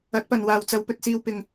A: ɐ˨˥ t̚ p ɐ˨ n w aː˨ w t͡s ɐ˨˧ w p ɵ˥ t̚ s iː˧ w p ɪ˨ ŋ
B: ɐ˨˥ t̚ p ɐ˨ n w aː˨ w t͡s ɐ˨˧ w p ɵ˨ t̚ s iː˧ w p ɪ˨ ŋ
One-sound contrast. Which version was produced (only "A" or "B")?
B